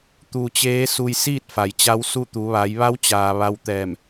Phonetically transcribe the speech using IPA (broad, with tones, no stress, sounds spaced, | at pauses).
t̪ u˧ t͡ɕ eː˧˥ s u˧ j s iː˥˨ t̚ f a˩ j t͡ɕ a˧˥ w s u˥˨ t̪ u˩˧ ʋ a˩˧ j ʋ a˧˥ w t͡ɕ aː˩ ʋ a˧ w t̪ ɛː˧˩ m